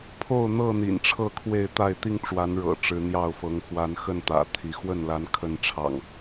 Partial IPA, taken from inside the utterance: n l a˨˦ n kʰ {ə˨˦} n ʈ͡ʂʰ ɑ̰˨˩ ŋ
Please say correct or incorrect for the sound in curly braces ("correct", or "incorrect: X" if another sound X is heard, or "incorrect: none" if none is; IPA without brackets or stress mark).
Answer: incorrect: ə˥˨